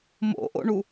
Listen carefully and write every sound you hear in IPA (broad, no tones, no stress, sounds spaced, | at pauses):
m o̰ ʔ o̰ ɳ u